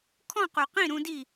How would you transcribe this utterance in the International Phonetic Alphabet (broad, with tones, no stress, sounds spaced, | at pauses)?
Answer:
kʰ ɔ̃˥˨ q u˨ q ĩ˥˨ ɾ ũ˦ d i˥˨